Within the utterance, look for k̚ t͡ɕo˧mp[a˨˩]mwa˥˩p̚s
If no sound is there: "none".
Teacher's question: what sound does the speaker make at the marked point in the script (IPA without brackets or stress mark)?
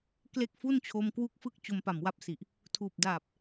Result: a˨˩